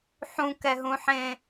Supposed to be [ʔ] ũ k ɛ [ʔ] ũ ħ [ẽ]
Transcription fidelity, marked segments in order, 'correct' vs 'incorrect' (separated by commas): incorrect, incorrect, correct